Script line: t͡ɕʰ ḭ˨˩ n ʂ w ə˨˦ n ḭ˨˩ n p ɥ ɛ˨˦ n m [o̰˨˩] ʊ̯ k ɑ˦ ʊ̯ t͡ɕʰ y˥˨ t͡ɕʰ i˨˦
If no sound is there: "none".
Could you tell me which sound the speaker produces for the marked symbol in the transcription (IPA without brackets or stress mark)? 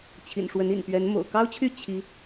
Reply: o̰˨˩